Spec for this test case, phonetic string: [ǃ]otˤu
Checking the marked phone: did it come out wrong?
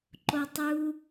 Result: no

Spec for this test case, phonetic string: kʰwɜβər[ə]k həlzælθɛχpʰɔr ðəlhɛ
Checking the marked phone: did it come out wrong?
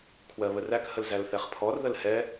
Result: yes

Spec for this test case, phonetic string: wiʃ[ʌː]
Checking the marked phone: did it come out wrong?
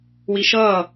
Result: no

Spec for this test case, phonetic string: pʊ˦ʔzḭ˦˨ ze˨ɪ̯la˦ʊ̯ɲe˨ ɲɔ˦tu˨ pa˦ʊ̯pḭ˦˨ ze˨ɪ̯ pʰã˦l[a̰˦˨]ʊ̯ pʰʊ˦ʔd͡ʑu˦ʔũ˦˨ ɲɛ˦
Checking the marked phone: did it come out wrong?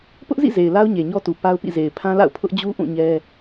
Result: no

